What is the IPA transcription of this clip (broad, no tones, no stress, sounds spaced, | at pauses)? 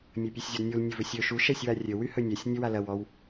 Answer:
mʲ ɐ pʲ u sʲ zʲ ɔ d nʲ u l nʲ ɵ v ɵ sʲ ɵ ʃ u ʃ ɛ sʲ w a rʲ ɵ w y h ɵ nʲ ɛ sʲ nʲ ɵ w a l ɐ w ɔ w